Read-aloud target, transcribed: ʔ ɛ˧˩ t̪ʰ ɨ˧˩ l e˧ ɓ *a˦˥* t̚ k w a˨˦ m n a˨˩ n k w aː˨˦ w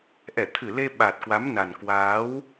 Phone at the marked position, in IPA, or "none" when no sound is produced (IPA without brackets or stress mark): a˨˩